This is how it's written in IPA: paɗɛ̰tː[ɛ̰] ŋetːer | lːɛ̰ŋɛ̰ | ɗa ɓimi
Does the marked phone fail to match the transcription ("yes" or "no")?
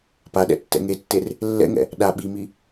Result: no